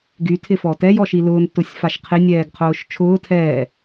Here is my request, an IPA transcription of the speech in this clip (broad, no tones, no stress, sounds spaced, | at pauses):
ɡ y tʰ ɪ f ɔ t ɛ j ɔ ʃ i l ʊː n t ʊ sʲ f a ʃ qʰ ɪ nʲ ɛː ɡ qʰ ʊː ʃ t͡ʃʰ ʊː tʰ ɛː